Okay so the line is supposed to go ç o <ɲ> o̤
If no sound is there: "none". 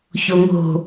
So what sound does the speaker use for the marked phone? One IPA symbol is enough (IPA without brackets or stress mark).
ŋ